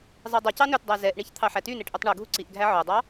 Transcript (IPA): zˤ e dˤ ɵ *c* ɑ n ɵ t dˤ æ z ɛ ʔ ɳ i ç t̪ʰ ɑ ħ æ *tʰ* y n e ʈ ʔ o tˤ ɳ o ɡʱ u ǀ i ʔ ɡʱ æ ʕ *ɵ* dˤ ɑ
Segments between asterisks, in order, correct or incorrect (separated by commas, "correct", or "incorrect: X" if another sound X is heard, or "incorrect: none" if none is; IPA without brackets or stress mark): correct, incorrect: t, incorrect: œ